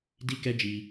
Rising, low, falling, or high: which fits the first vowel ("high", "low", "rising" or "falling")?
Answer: high